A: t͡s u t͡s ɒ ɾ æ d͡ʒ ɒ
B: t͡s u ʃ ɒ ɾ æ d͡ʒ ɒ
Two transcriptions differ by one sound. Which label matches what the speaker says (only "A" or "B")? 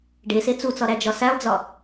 A